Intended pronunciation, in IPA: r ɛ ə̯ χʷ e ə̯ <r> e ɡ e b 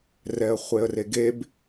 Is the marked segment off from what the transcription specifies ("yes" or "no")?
no